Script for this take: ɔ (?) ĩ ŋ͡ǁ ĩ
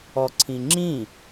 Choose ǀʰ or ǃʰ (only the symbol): ǀʰ